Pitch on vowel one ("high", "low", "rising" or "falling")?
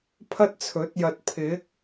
high